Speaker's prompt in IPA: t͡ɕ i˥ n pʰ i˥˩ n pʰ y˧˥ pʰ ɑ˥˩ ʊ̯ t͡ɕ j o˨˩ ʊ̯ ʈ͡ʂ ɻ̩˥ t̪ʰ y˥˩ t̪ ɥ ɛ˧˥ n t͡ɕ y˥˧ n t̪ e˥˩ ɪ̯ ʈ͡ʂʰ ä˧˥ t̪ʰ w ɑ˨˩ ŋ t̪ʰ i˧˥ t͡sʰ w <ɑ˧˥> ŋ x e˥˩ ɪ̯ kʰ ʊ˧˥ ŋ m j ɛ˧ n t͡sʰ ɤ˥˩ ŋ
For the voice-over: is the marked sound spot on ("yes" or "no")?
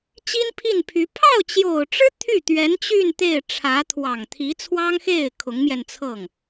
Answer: no